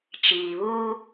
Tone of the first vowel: low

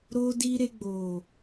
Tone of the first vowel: high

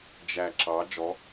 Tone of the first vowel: low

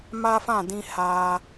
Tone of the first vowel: high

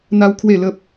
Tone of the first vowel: high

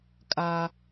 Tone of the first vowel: high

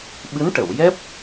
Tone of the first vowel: rising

